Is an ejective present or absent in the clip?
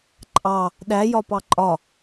present